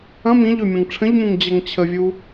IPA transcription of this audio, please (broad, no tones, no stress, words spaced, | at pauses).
ɐ̃ mĩʎø mʲɐ̃ŋʈ͡ʂʰə̃ʎmũŋ d͡ʑɐŋt͡ɕʰəvʲu